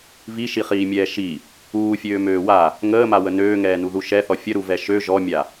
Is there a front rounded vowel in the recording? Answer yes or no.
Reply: yes